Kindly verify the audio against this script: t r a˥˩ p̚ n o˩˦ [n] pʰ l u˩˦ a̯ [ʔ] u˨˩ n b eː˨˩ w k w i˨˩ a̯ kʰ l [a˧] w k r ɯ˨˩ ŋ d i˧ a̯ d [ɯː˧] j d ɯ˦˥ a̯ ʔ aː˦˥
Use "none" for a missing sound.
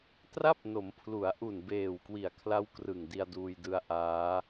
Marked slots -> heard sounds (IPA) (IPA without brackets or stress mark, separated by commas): m, ʔ, a˦˥, uː˧